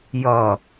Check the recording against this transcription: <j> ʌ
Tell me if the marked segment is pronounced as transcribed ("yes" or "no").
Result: yes